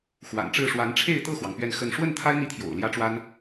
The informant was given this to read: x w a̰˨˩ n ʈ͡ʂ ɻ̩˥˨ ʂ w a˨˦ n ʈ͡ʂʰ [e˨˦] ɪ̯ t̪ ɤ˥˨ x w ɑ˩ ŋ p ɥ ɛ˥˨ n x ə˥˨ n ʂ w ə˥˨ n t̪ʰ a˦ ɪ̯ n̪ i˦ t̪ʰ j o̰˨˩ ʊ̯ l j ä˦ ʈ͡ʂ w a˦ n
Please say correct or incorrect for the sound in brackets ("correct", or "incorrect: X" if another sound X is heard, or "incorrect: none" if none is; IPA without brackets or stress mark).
incorrect: e˥˨